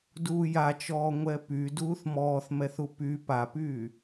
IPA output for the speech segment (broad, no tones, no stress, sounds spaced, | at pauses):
d uː j a t͡ʃ ɔː ŋʷ ɛ p y d uː θ m ɔː θ m ɛ θ u p y p a p yː